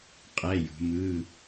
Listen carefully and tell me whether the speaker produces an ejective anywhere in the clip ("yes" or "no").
yes